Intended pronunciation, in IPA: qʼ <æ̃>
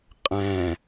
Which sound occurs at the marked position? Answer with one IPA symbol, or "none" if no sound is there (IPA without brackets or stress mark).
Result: æ̃